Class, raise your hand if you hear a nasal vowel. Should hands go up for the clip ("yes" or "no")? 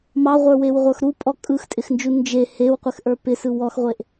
no